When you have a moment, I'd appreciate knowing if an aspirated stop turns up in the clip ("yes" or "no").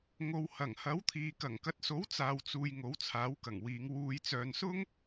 yes